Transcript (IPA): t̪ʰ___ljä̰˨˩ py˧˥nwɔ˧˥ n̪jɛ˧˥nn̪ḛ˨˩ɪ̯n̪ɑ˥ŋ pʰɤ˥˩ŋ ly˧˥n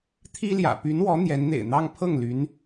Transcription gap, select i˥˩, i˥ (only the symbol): i˥